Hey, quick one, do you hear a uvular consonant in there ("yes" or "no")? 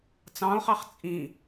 yes